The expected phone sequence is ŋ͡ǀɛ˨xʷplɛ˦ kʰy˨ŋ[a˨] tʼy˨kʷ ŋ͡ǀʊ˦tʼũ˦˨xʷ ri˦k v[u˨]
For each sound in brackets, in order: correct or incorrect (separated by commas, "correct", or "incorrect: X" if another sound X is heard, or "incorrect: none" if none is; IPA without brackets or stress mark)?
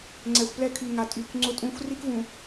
correct, incorrect: ũ˨